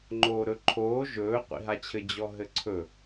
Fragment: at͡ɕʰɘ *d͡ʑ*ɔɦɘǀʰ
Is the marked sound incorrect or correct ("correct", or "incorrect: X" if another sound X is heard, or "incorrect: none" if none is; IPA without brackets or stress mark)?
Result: correct